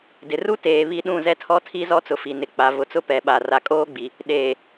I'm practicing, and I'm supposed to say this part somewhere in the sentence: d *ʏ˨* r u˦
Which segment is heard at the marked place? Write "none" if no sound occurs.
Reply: ɪ˨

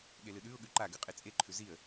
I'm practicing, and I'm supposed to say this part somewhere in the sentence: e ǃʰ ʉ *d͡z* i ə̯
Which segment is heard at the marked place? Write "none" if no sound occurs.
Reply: z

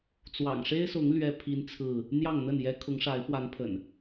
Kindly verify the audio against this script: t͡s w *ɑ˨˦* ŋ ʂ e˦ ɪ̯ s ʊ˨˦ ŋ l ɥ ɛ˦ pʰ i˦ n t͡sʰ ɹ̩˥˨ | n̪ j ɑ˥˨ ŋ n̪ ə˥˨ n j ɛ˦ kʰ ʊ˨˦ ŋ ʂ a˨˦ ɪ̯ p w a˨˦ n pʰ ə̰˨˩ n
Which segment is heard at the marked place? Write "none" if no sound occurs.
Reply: ɑ̰˨˩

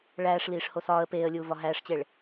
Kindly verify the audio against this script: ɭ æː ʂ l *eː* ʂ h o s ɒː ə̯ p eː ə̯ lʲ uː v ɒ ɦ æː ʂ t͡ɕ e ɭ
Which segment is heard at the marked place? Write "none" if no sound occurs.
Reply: iː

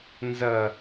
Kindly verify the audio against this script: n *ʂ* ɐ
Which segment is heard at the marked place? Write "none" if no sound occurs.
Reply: z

